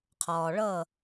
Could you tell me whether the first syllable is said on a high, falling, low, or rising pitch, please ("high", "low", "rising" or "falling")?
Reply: low